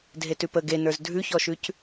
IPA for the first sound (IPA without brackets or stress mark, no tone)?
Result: dʱ